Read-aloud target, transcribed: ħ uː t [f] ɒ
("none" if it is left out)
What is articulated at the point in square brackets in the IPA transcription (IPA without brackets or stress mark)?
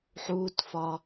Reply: f